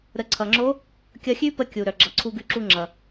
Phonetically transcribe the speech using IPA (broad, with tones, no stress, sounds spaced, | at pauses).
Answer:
ɾ ə˩˧ ǀʰ ʌ˩ ŋ͡ǁ o˧˥ | kʲ ʌ˧ xʲ ʉ˥ p ə˧ kʲ u˩ ɾ œ˩ ɡ͡ǁ ʌ˩˧ ǀʰ u˧ ɡ ʉ˧˥ ǁ u˧ ŋ͡ǁ ʌ˩